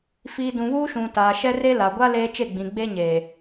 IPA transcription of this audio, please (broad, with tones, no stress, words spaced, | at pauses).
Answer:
fiː˨ dũ˨βuː˦ ʃũ˨taː˨ʃɛ˦re˦ la˨ɡʷa˦ leː˦ t͡ʃe˦˨ɡ͡bĩ˨ ɡ͡be˦ɲeː˨